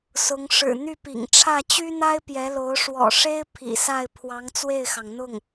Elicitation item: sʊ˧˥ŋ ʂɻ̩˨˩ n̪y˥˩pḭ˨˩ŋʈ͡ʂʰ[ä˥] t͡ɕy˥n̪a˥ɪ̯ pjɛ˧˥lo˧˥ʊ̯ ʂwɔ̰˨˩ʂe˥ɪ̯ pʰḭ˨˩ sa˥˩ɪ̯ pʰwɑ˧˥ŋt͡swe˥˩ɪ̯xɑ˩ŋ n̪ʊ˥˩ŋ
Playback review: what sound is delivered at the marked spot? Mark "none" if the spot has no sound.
ä˥˩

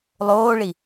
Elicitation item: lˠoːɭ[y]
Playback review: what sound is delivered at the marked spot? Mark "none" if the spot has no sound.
i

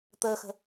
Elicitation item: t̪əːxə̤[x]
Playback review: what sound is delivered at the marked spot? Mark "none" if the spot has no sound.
none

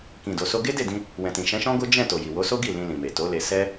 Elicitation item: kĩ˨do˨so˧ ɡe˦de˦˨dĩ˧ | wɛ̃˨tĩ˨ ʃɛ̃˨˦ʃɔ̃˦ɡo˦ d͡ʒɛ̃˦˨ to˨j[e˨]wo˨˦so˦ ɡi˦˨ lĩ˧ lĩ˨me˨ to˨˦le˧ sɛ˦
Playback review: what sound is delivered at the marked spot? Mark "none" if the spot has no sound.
i˨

